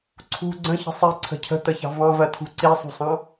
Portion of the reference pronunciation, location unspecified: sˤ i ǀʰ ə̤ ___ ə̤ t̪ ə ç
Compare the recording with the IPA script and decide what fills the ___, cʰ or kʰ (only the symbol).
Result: cʰ